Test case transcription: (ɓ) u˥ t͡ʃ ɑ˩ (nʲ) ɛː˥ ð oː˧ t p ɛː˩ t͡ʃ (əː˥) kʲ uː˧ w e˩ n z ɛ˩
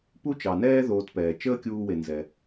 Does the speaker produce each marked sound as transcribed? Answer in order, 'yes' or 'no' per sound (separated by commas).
no, no, yes